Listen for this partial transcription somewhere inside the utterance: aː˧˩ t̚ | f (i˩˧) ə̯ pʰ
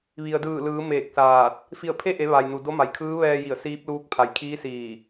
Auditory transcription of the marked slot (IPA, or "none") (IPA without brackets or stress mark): i˧˩